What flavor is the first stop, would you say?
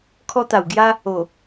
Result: aspirated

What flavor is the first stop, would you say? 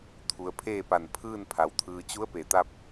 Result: aspirated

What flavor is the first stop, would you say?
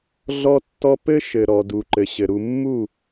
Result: plain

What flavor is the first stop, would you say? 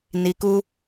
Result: plain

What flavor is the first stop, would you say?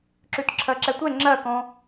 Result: click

